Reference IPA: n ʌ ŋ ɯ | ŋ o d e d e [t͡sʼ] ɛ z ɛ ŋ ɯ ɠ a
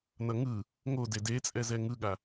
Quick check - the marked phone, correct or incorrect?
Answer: correct